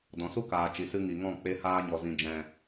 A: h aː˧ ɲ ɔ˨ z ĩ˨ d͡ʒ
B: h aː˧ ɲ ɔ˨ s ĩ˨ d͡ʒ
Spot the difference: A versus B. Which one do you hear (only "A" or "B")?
A